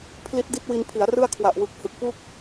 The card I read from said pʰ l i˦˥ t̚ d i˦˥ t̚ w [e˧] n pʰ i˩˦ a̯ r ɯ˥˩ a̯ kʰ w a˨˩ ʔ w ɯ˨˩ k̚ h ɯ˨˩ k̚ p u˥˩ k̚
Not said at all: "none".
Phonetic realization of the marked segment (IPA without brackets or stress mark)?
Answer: i˧